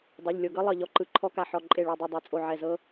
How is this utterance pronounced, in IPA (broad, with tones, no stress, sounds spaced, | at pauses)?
dˤ o˩˧˩ ʎ lʲ o˧˩ ɡ ɤ˦˥ lˠ ɤ˧˩ ʎ ɔ˧˩ ǃ ɯ˧˩˧ ǃʰ ɔ˦˥ k a˧˩ ħ ɔ˧˩ ǃʼ e˧˩ ɭ o˧˩ dˤ ɯ˧˩ dˤ e˧˩˧ t͡sʼ o˧˩ ʕ ɛ˧˩ z ɤ˦˥